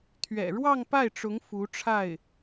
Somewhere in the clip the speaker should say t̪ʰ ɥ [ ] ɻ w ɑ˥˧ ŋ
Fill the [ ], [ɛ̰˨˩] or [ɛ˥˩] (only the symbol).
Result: ɛ̰˨˩